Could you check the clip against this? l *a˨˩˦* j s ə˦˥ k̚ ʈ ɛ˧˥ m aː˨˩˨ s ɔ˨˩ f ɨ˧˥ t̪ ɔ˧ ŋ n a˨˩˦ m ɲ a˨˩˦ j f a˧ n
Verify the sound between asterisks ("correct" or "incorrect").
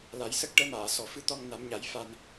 correct